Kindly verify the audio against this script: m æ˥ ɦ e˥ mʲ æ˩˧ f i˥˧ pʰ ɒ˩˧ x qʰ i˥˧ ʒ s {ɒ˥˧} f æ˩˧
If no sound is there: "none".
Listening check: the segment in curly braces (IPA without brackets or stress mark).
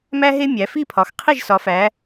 ɒ˩˧